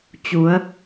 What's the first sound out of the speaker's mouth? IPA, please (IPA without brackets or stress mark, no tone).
t͡ɕ